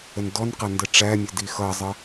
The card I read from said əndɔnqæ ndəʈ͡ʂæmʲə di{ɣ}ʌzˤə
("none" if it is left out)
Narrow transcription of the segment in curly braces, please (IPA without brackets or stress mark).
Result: x